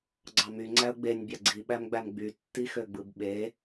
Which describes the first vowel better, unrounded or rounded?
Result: unrounded